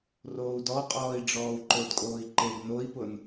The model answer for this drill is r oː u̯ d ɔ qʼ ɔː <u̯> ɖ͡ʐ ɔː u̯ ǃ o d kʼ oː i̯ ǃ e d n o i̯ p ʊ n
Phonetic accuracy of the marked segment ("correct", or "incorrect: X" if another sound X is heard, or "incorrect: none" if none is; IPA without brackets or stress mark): incorrect: i̯